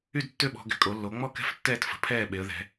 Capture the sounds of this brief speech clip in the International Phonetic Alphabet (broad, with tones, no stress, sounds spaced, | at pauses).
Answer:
y˥˨ d tː ø˥˨ ɓ ɔ̤˩˧ ɡ ɛ̤˩˧ kʼ o˩˧ lː o˩˧ ŋ͡m ɔ˥˨ k ɛ̤˥˨ f tː ɛː˥˨ t f ə̤˩˧ pʰ ɛː˥˨ ɓ e˩˧ ə̯ ð ɛ̤˩˧